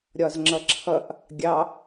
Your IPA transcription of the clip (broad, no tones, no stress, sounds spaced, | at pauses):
ɾʲ ɒ z ŋ͡ǁ ʌ ǁʰ ʌ ʔ | ɡʲ ɑ